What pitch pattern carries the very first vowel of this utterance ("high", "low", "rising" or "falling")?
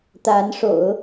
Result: rising